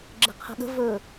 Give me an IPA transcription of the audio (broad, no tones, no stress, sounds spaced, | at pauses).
ɡ͡ǁ ə̤ qʰ ə̤ ɠ ə̤ v ɵ